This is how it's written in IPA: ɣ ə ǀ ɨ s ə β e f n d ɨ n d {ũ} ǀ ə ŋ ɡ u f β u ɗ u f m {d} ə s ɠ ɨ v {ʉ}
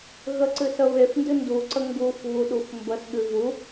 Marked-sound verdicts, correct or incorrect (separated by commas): incorrect, incorrect, incorrect